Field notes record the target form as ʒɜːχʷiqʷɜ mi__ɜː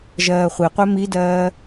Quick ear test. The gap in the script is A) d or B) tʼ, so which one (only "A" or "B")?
A